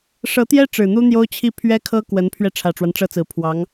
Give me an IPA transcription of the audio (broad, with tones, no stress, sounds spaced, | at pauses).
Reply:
ʂ ɤ˧˥ t̪ j ɛ˥ ʈ͡ʂ ɻ̩˨˩ n̪ u˥ n̪ j o˥ ʊ̯ t͡ɕʰ i˥˩ pʰ ɥ ɛ˥ kʰ ɤ˥ k w ə˧˥ n pʰ ɥ ɛ˧ ʈ͡ʂʰ ä˨˩ ʈ͡ʂ w a˦ n ʈ͡ʂ ɤ˥˩ t͡s ɹ̩˧˥ pʰ w ɑ˧˥ ŋ